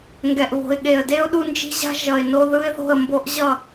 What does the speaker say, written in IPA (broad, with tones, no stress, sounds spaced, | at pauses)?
ŋ ɡ ɛ˨ ʔ β o̤˨ ɪ̯ ɠ e˨ ə̯ d e˦ ʊ̯ ɗ u˦ n d͡ʒ i̤˦ ʑ a̤˦ ʒ ʌ˨ ɪ̯ n o˦ ð ɯ˦ ɪ̯ ð o̤˦˨ ə̯ m b o˦ ʔ ʑ ʌ˦˨